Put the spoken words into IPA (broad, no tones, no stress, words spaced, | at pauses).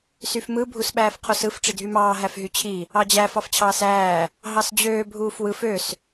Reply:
syfmɯ bʱusɓæːfqʰosɯf ʈ͡ʂidʱymɑː ɦæfɦyt͡ɕʰi | ɑd͡ʑæ fɑft͡ɕʰɑːsæː | ɦɑsd͡ʑøː bʱuːfwɯf øs